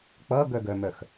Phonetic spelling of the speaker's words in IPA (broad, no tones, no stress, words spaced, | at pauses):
k͡pʌɡœɡœmœx